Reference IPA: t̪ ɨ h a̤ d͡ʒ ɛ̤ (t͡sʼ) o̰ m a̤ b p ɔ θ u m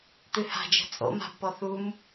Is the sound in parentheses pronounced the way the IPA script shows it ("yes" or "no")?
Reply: yes